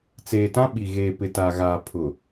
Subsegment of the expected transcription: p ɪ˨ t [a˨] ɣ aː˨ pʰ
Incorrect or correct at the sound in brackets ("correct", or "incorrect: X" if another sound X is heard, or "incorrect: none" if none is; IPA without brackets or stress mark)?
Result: correct